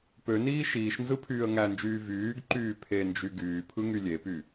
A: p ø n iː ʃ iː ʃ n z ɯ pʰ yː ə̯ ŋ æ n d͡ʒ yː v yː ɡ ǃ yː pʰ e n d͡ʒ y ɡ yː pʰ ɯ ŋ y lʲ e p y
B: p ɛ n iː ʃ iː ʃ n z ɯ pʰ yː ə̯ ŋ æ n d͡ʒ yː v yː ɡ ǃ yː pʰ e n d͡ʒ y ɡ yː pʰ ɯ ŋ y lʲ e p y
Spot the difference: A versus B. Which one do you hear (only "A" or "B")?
A